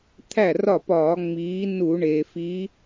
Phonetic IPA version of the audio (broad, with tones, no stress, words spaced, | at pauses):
t̪ʰæ˥˩rɒ˥˩pɒː˧˩˧ ŋ͡miː˨˦ nu˧˩˧ɳeː˩fi˨˦